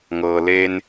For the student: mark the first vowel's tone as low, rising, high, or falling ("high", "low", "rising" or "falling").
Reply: low